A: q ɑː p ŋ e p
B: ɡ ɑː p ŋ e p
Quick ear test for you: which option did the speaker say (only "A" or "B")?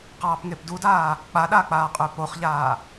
A